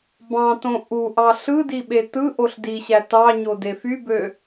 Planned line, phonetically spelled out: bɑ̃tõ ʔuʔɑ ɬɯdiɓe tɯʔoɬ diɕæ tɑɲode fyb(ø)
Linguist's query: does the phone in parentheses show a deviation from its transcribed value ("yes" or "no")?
no